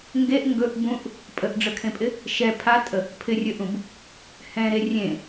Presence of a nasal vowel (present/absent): present